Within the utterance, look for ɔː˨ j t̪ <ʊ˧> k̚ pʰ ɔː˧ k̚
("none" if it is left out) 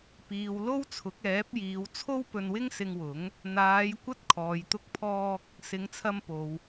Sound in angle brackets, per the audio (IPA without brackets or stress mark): ʊ˧